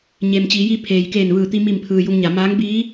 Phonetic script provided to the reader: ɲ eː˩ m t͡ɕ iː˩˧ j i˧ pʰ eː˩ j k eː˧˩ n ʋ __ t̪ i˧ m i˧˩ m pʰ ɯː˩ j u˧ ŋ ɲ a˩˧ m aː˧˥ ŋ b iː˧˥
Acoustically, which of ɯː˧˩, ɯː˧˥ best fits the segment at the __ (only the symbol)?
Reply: ɯː˧˩